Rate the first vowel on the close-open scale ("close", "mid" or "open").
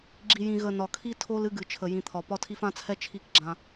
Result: close